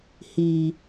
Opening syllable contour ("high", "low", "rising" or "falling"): low